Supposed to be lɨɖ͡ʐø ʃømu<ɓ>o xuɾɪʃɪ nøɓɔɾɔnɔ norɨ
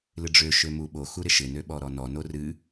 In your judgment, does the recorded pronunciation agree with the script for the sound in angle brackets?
yes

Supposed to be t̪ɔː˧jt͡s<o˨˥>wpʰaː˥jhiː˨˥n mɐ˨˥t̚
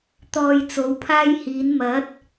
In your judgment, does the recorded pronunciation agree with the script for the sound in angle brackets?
yes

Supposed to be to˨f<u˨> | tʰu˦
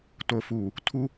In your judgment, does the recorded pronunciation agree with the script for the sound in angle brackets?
no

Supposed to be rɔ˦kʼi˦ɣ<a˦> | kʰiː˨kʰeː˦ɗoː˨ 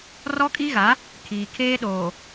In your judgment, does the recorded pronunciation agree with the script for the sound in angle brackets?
no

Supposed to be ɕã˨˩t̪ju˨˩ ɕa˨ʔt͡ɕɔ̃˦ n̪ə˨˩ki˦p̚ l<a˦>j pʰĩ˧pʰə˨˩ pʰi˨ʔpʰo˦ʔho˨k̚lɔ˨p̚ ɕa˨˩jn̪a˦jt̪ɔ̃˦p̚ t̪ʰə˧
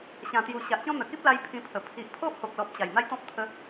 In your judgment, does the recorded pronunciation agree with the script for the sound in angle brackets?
no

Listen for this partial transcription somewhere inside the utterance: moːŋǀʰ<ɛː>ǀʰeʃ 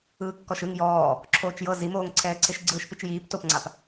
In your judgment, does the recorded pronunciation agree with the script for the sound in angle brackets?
yes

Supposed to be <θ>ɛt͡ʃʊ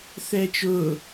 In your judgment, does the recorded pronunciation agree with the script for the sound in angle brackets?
yes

